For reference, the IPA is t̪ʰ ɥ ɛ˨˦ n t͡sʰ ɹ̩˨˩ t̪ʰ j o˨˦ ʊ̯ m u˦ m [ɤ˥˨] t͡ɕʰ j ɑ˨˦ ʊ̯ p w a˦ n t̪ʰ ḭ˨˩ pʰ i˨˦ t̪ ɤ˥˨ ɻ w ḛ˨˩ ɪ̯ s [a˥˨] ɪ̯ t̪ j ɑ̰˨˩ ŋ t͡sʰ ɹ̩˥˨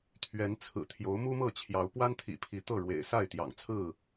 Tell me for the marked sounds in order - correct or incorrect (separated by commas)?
correct, correct